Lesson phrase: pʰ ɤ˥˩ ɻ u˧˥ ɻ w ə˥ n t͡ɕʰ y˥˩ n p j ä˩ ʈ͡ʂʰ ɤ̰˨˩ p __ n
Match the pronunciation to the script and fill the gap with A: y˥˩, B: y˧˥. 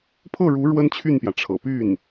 A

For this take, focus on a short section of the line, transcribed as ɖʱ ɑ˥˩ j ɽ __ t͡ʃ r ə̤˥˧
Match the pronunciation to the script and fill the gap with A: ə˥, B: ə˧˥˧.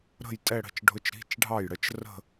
A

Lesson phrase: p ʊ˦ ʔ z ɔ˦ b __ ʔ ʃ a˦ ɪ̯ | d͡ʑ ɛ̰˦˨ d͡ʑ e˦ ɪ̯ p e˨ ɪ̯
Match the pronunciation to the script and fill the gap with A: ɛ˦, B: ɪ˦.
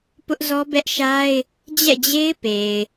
A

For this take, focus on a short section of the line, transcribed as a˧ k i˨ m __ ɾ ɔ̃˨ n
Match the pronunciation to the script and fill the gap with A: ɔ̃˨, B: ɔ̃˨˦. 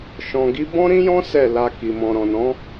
A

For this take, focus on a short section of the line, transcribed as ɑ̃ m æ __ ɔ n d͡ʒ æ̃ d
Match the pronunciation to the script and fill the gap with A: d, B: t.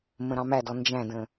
A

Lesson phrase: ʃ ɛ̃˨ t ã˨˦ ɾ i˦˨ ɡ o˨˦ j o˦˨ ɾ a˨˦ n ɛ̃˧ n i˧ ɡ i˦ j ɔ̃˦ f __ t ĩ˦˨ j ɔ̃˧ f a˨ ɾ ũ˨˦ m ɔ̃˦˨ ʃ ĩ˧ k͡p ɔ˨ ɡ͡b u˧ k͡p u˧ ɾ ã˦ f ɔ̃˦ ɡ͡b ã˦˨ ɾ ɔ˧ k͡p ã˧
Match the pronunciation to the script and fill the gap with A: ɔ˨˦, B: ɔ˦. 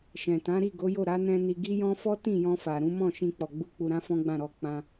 B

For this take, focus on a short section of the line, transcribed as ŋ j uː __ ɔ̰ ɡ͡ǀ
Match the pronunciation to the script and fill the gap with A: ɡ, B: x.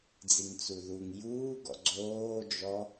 A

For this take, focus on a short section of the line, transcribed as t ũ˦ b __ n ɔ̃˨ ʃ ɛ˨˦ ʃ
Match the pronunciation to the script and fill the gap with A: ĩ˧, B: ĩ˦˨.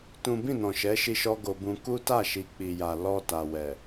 B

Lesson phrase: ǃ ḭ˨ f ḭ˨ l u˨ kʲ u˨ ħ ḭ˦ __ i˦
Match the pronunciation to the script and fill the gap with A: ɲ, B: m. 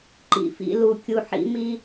B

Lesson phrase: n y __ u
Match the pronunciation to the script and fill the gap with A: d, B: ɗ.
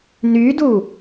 A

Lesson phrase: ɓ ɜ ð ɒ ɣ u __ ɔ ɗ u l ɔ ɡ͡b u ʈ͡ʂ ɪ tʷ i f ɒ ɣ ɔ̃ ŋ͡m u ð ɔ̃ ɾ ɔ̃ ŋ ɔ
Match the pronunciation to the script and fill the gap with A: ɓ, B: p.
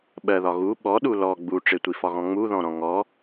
A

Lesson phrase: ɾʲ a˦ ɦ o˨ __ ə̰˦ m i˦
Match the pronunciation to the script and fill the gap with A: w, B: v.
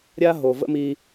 B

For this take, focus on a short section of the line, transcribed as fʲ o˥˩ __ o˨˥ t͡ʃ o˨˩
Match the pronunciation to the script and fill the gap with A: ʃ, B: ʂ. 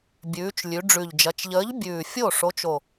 B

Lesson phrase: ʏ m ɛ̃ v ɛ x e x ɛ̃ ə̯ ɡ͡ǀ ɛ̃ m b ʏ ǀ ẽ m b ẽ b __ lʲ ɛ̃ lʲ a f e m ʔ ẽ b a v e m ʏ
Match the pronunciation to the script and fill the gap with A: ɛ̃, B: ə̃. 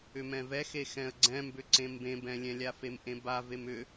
A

